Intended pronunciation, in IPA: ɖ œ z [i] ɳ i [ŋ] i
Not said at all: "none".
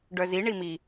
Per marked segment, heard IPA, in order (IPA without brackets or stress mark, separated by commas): i, m